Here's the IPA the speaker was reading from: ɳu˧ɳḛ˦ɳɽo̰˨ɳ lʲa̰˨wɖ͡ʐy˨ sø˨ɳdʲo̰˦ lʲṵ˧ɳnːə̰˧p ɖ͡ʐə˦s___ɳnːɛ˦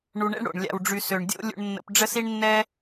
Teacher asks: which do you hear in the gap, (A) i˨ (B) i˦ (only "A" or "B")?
B